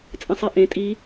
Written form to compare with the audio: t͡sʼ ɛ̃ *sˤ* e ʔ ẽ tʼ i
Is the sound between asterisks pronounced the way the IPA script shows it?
yes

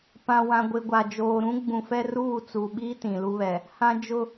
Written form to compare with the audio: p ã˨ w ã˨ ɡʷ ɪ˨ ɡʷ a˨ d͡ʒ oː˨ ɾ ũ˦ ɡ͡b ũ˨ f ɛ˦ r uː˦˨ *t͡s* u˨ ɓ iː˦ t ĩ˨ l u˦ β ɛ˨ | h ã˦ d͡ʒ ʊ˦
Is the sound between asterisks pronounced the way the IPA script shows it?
yes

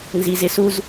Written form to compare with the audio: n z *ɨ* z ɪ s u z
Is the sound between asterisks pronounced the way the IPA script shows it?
no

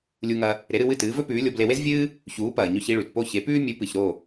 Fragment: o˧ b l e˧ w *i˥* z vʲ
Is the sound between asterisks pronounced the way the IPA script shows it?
no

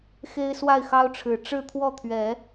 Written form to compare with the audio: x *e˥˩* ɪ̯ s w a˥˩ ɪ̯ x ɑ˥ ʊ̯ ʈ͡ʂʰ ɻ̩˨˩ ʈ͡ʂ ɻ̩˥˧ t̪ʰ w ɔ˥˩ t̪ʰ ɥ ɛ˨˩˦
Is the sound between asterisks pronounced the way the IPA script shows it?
no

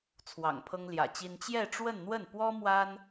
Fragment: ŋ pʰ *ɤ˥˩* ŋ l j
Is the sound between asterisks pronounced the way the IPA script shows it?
no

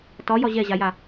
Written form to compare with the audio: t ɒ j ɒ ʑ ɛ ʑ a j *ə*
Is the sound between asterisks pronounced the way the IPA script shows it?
no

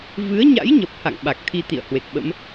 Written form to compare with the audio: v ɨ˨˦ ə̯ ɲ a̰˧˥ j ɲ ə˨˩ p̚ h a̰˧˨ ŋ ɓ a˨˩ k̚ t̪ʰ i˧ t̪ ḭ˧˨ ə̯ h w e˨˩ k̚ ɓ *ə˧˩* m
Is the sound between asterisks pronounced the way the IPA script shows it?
no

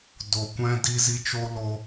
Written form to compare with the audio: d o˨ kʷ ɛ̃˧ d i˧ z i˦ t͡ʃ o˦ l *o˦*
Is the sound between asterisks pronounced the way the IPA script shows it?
no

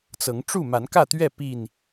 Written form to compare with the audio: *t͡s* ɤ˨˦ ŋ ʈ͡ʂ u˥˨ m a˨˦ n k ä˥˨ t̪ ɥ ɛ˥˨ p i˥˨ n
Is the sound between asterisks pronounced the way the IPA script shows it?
yes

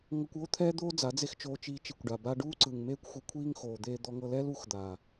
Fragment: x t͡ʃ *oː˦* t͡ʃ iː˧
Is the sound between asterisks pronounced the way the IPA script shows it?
no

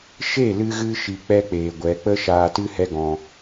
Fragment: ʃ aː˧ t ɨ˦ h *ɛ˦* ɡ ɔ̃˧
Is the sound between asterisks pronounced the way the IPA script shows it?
yes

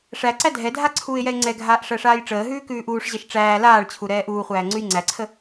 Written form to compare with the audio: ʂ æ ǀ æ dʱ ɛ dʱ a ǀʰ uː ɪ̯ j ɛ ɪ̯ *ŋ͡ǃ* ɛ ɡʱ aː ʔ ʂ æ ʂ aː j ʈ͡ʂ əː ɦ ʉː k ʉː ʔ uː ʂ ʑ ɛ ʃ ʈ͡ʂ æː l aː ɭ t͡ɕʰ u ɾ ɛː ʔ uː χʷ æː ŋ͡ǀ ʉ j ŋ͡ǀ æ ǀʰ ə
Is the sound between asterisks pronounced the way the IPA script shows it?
no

